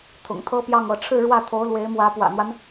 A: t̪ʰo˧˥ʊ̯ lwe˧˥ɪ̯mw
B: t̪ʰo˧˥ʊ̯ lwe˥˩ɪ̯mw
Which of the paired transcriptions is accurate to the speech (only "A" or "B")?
A